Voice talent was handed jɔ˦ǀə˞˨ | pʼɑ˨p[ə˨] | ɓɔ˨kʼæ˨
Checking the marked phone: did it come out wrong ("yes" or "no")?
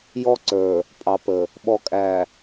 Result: no